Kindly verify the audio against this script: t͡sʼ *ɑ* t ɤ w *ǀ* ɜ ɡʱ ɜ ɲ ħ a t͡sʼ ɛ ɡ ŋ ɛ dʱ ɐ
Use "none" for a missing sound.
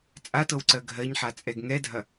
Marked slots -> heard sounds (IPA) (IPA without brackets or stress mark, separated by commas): a, ǀ